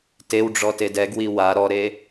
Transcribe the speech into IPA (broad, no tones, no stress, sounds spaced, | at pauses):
t e w ɖ͡ʐ ɔ t e d ɛ ɡ w i w a ɾ ɔ ɾ e